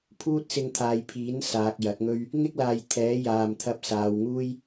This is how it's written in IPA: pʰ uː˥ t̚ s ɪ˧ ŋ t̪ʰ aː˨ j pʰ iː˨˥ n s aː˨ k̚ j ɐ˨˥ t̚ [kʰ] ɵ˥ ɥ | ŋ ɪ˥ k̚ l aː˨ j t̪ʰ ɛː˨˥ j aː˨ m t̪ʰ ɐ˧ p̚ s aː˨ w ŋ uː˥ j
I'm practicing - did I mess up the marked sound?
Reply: yes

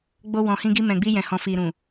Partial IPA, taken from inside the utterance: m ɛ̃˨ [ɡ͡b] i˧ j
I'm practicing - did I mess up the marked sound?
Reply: no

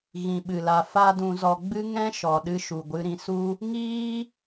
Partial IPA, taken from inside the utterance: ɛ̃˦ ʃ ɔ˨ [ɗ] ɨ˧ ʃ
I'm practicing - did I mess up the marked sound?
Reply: no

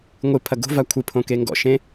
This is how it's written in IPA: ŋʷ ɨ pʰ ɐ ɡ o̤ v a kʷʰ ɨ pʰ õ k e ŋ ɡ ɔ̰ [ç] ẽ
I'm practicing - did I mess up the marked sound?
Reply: yes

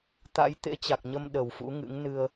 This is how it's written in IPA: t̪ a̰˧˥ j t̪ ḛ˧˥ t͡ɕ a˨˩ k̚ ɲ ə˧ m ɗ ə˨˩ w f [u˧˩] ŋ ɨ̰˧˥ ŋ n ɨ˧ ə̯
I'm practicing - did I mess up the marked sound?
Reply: yes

